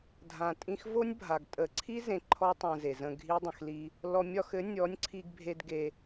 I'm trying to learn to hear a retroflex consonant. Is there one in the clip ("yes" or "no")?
no